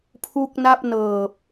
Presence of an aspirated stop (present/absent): present